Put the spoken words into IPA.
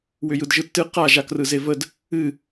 w ʏ j ɯ d ʒ ɯ tː ɨ q a ʒ a k r ɯ z e v ə d | ɨ

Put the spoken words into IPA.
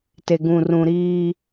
t e˨ ɡ ũ˨ r ũ˨ ɾ iː˦

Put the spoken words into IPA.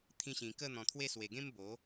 t̪ʰ ĩ˧ ɕ ĩ˨˩ k ə˥˧ n̪ ɔ̃˨˩ t̪ʰ w e˥˧ s w e˨˩ ɡ ẽ˦ m b o˨˦

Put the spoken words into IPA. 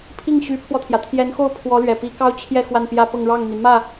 pʰ i˥˩ ŋ ɕ y˧˥ pʰ w ɔ˧ t̪ʰ j ä˩ t̪ʰ j ɛ˧˥ n x o˥˩ ʊ̯ pʰ w ɔ˧˥ l ɥ ɛ˨˩ p i˧˥ k ɑ˥ ʊ̯ t͡ɕʰ j ɛ˥˧ x w a˥˩ n p j ä˥ p ɤ˥˧ ŋ ɻ ɑ˥˩ ŋ n̪ i˩ m ä˥˩

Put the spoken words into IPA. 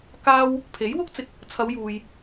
k aː˧ w | pʰ e˨˥ j w ʊ˥ k̚ t͡s ɪ˧ k̚ | t͡sʰ ɐ˨˧ w j uː˨ j

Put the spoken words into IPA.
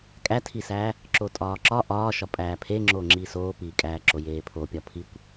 kʼ æ tʰ i s æː | ǁ o tʼ ɒː ǁ ɒ ʔ ɒː ʃ ɒ pʼ æː pʰ e ŋ͡ǁ oː ŋ͡ǁ iː s oː p iː kʼ æː ǁ o j eː pʰ o pʲ ɒ pʰ i kʷ

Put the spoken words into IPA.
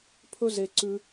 pʰ ɵ˦ z e˦ ǀ ʉ˦

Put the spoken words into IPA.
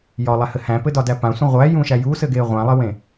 j ɒ lˠ æ h ɘ h æ̃ p ɘ d ɒ d æ p ã sʷ ẽ ʁʷ æ j ũ ʃ æ j u s ɘ ɡ e ʁʷ æ̃ lˠ ɘ w ẽ

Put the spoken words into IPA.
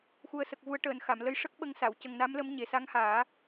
x u˨˩ ə̯ s ə˨˩ k̚ v u˨˩˦ ə̯ ʈ əː˨˩˨ n x a˨˩˨ m l ə˧ j ʂ ə˦˥ k̚ ɓ ə˧˥ ŋ s a˨˩˨ w c ə˨˩ ŋ n a˧˥ m l ə˧˥ m ɲ e˨˩ s a˧˥ ŋ h aː˨˩˦

